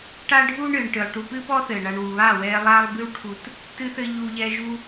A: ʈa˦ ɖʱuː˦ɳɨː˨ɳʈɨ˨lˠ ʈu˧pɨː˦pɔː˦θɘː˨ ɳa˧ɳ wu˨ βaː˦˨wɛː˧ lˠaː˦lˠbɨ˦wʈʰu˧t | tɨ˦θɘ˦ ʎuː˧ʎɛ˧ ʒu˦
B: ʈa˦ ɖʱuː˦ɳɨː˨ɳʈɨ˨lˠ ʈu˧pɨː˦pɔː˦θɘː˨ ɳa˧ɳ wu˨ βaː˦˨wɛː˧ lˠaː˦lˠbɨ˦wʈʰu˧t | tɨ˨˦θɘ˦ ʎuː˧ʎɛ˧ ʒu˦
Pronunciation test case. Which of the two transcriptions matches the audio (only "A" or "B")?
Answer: A